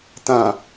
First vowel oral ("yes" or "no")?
no